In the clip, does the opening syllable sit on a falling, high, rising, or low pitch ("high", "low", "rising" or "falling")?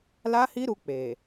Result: high